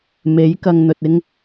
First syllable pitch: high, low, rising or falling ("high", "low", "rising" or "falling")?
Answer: rising